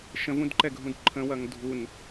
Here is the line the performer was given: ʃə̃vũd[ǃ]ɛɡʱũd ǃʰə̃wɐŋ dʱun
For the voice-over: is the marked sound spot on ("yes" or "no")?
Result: yes